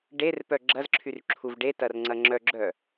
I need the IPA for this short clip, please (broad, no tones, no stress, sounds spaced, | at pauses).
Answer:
ɖ e r p œ ɡ͡ǁ ɐ z ǁʰ y r ǁʰ u v ɖ e t ɐ r ŋ͡ǀ ɐ ŋ͡ǁ œ ɡ͡ǁ œ